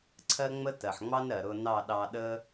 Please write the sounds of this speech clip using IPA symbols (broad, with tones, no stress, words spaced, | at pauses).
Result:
ǀʰɜ˦ ŋ͡mə˦tɜ˨ħŋ͡mɑ˦n ɾɜ˨ɾʊ˧ nɑ˦˨ɗɑ˧ɗə˦